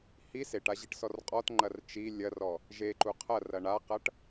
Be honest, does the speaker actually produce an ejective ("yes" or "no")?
yes